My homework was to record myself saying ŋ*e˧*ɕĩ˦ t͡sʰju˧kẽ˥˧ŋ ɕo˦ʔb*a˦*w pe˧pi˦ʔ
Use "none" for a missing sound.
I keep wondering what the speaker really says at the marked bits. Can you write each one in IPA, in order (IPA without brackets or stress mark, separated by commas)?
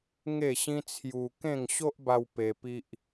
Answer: e˥˧, a˧